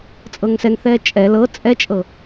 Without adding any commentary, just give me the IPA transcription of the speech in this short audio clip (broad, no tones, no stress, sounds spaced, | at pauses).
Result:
t͡sʼ ɤ ŋ s ɛ ŋ θ ɛː t͡ʃʼ ɛ l ɤ t͡sʼ ɛ t͡ʃʼ ɤ